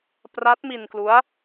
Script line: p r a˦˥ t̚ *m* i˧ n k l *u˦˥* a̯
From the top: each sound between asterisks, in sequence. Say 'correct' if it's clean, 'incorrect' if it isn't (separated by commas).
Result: correct, correct